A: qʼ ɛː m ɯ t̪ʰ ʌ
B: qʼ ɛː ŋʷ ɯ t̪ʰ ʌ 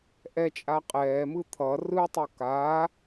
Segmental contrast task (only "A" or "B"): A